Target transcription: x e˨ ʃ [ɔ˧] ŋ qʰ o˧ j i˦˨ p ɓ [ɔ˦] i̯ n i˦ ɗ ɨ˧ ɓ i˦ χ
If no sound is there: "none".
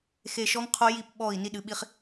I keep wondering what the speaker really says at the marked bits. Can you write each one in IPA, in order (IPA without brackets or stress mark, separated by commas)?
ɔ˧, ɔ˦˨